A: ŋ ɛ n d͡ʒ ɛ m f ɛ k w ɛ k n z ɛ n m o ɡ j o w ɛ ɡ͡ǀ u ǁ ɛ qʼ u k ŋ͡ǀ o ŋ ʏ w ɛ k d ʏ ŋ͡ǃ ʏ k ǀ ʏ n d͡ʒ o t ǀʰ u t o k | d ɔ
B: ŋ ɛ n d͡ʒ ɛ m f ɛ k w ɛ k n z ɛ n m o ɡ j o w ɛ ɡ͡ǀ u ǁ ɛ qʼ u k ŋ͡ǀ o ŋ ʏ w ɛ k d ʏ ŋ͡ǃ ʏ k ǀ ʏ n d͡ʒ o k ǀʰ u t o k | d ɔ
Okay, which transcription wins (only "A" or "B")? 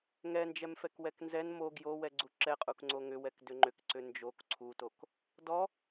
B